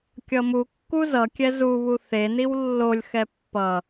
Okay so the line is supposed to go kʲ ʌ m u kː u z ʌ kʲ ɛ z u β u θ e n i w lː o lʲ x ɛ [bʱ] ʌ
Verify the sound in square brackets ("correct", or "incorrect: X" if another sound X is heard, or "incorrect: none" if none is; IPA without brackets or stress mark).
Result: incorrect: pː